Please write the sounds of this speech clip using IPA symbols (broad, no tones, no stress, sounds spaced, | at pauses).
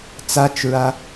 t͡s a t͡ʃ ɹ a